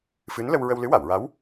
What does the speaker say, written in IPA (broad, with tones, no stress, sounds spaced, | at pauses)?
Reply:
f ɨ˧˥ n l ə˧ w ɹ ə˧ w l ɨ˧˥ w a˨˩˨ w ɹ a˧˥ w